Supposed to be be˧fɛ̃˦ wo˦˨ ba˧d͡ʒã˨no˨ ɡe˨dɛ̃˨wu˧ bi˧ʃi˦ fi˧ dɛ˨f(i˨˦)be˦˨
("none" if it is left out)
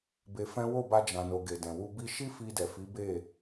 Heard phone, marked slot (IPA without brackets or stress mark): i˨˦